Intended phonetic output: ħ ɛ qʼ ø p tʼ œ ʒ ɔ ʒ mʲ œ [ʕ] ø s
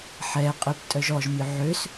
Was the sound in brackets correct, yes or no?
yes